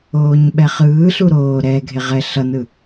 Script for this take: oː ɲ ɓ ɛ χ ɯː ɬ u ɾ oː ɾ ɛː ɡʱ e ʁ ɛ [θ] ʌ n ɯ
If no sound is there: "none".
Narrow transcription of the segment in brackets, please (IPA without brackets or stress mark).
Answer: ɬ